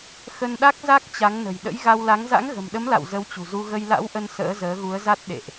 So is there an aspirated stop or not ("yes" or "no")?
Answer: no